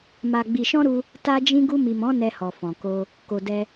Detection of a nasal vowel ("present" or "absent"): present